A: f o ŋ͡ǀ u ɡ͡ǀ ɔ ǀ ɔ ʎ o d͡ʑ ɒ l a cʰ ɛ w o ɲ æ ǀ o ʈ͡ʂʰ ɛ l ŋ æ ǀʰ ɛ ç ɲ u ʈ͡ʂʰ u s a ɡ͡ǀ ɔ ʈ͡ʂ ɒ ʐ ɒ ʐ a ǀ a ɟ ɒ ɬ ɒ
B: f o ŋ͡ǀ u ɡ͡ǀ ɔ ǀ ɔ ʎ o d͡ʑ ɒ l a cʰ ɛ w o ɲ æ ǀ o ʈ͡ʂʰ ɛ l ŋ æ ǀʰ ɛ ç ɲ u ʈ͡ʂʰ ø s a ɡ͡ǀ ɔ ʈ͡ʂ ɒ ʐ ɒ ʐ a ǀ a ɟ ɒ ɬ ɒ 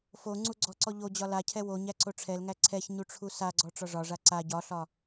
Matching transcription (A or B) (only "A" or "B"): A